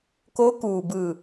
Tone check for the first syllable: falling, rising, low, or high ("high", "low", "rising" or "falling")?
rising